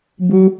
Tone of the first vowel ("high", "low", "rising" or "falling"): high